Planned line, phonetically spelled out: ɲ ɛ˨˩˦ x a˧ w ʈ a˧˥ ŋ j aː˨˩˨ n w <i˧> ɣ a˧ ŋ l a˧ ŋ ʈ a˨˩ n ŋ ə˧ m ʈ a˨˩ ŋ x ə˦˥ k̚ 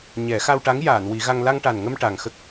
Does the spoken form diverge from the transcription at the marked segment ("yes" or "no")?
yes